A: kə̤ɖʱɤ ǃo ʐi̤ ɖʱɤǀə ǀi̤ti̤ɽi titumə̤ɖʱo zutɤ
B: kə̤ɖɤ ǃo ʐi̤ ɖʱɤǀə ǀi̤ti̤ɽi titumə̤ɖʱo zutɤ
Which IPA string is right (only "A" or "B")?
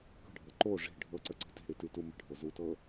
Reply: A